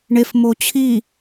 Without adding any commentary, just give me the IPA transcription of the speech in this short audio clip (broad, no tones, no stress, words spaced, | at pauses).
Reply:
ɳefmo t͡ɕʰi